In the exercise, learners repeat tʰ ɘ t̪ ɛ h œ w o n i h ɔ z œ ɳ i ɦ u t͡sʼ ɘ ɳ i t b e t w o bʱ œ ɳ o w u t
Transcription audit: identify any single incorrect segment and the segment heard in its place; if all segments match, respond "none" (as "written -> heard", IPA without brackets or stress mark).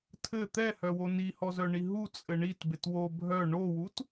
none